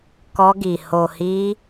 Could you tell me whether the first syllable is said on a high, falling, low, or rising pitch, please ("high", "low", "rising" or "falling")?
high